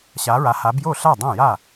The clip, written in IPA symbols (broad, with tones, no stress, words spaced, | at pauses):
ɕa˨˦ɹa˨˦ha˨˦bjo˥˩ ɬa˥˩dˤã˥˩ja˥˩